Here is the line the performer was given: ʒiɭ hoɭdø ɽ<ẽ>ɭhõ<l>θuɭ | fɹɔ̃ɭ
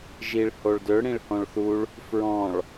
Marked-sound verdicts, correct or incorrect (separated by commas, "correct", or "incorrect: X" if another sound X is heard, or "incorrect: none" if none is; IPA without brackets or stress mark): incorrect: ĩ, incorrect: ɭ